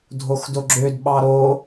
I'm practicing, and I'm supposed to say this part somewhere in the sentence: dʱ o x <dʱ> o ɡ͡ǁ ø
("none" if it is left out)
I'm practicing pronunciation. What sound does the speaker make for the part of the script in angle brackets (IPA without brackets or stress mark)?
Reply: d